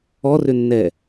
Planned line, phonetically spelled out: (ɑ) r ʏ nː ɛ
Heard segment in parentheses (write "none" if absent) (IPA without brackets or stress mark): ɔ